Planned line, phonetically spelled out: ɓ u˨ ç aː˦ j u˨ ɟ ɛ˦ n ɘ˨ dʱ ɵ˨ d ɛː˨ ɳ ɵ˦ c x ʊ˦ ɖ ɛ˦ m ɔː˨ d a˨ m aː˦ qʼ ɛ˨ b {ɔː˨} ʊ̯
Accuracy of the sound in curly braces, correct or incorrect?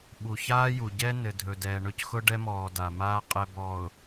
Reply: correct